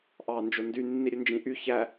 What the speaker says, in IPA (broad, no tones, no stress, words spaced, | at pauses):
ʔɑ nd͡ʒondy nːiɾʲønd͡ʒĩʔy çæ